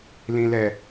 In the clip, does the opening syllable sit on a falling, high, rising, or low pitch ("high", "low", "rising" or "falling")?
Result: low